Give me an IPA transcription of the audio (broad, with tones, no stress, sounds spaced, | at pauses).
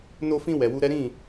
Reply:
n o˧ f ĩ˧ w ɛ˨ w u˧ ɾ ɛ˦ ɾ ĩ˦˨